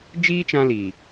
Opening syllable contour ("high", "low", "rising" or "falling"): high